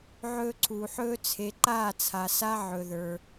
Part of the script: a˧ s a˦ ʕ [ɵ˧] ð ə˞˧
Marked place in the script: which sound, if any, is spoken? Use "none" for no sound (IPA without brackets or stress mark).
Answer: ɵ˧